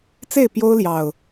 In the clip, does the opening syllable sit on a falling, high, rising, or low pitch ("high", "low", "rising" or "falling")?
falling